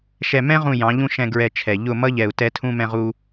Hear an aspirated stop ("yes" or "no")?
yes